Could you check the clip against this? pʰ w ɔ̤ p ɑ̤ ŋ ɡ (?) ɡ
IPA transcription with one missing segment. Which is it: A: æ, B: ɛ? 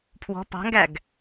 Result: A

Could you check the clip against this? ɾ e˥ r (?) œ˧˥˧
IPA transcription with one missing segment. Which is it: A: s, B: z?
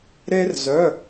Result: B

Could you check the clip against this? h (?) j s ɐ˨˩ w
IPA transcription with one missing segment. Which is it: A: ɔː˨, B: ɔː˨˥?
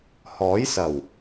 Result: B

